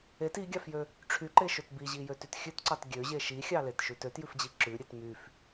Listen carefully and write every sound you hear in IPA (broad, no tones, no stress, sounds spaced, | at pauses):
e t i ɡʲ ɑ f j ø | ʈ͡ʂʰ y ǃ e ʃ ø t b i ʑ i j ø t y t xʲ ʉ t ǀ ɑ t ɡʲ ø ʑ e ʃ i xʲ ɑ l e t ʃ ʉ t ø t j ʉ f d͡ʑ i ǁ ʉ ɾʲ e t m y f